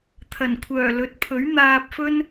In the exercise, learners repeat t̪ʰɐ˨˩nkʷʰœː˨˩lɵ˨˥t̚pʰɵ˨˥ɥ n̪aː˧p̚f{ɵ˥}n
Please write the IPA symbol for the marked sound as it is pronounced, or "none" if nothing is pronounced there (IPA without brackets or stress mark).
ɵ˥